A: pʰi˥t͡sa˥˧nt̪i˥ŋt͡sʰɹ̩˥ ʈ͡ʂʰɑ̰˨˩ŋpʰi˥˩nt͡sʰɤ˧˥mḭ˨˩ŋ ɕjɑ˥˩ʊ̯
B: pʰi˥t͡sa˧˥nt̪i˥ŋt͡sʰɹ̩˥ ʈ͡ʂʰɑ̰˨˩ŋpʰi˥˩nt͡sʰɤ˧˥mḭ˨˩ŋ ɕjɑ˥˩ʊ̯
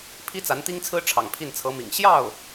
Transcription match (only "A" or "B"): B